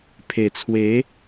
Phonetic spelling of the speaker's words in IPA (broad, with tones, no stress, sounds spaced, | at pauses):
pʰ e˨˩ t͡sʰ w e˨˦